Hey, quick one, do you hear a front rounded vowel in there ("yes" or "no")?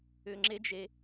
yes